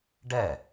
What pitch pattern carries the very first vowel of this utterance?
falling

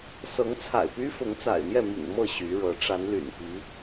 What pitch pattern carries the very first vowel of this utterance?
rising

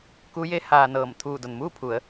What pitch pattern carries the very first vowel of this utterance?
rising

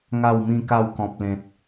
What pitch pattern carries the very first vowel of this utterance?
falling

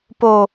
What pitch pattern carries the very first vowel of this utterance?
low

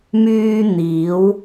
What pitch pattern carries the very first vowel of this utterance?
high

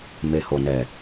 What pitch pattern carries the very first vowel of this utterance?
low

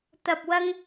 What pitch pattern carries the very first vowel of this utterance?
low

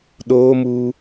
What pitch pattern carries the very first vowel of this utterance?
high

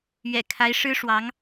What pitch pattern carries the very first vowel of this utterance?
low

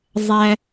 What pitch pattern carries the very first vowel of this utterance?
high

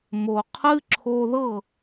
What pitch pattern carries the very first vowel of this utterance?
low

